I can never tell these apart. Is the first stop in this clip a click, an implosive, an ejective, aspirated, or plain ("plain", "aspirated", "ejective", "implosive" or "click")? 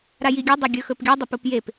plain